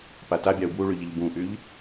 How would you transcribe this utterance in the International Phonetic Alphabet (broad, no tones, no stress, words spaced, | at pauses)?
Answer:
patabʲau̯ bwuɭy ʎɪʎbũʔyʎ